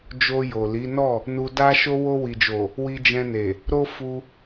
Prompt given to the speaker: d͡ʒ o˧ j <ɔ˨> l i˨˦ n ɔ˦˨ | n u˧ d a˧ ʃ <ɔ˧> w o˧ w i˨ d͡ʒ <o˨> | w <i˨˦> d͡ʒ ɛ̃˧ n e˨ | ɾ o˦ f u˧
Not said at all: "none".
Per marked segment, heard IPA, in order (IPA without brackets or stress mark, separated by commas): o˨, o˧, o˨, i˧